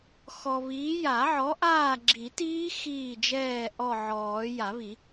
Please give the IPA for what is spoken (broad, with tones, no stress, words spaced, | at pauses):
xɔ˨βiː˨˥ ja˨˩˦ʕɔ˨˥ ʔaː˦˨ɡ͡ǁi˨˩˦tiː˦˥ xiː˦˨d͡ʒɛː˦˨ ʔɔ˦˨ʕɔː˨˩˦ ja˨˩˦βi˨˩˦